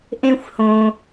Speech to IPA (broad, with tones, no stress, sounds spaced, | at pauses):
ʔ ẽ˥ xʷ h õ˨